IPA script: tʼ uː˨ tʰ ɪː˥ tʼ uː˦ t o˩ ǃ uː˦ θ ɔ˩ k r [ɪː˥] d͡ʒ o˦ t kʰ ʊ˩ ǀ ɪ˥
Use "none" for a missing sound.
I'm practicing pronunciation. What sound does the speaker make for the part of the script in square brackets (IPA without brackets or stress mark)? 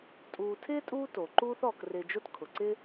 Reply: ɪː˨